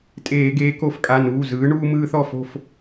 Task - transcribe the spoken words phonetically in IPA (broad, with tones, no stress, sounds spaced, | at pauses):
tʼ eː˧˩˧ ɡ eː˨˥ k o˧˩˧ f kʼ a˩˧˩ n uː˩˧˩ z ɯː˨˥ ɳ uː˦ m ɯː˦ θ ɔ˥˨ f o̤˥˨ f